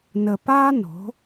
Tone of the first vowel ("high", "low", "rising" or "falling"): low